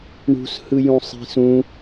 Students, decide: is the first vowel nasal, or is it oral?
oral